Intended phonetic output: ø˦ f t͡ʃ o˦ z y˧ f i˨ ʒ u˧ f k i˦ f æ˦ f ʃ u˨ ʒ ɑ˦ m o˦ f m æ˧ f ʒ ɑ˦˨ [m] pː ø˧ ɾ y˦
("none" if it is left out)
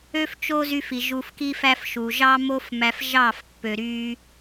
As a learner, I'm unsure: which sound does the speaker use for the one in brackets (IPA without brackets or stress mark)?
f